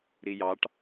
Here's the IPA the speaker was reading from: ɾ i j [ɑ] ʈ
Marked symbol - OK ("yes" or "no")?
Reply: yes